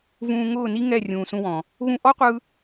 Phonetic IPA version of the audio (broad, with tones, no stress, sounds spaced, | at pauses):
v ũː˧ ŋ ʊː˦˨ n i˦ ŋ ɛ˦˨ rʲ ũː˨ s ũ˧ w ɔ̃˨ | ɣ ũ˧ ʔ ɔ˦ qʷ ɯ˧